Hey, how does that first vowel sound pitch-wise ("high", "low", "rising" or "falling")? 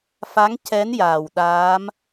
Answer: rising